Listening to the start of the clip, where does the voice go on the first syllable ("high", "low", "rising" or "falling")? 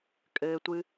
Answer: high